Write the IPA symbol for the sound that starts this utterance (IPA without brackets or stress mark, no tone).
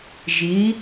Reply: ʒ